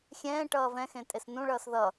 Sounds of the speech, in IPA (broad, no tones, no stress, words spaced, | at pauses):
xʲɛ̃ː ʈʌːvɛ̃xẽ tʼesnũɭʌːs ðʌ